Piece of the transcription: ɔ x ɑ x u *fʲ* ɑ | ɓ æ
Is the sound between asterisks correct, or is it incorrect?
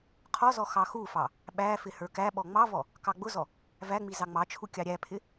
incorrect